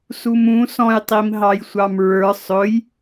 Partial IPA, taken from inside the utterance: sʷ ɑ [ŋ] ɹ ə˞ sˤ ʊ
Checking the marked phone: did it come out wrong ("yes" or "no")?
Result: yes